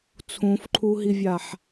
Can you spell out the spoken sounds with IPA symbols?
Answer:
t͡sʰũfǃʰuɦivʲaħ

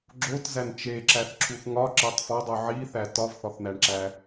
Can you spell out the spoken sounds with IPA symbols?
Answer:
ɡ͡ǁotzæn t͡ʃeǁæθǁʰuθ ŋɒǁetˤ fɒdˤu ʕiθæ tɒvθɒθn̪æɳǁæ

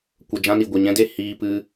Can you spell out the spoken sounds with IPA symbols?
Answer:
kʷə˧ d͡ʒã˦ni˨ ɡʷɛ˨ɲɛ̃˦de˦˨ hiː˧pɨ˧

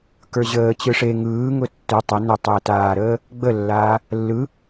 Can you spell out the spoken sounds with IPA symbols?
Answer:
kə˞ʑəː t͡ɕɯʂe ŋɯːŋʊ tːʊ tˤə nʊtˤɘːtaːɾəː | ɡ͡bəlːaː | lːɯ

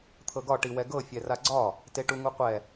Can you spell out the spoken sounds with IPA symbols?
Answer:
t̪ʰɤɡɒ ʈiwɛɡɤ fʲɛraɡ͡ǀɒ | teʈuŋuqʷɛ

